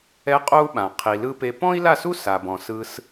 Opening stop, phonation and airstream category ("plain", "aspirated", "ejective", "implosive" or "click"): ejective